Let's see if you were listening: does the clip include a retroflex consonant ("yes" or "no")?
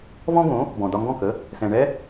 yes